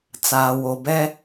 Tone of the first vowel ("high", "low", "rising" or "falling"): low